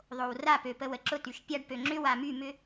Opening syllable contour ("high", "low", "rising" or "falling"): low